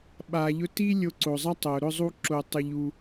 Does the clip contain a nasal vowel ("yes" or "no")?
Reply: no